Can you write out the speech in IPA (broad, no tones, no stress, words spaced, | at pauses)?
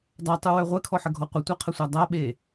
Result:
dˤatˤuwœ ʁʷɛkʰɔħəɡʱɔ qʷətʷaqʰəsʷa dˤaɓe